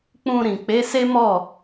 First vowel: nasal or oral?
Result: nasal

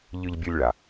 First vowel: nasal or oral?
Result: oral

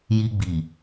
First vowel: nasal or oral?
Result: oral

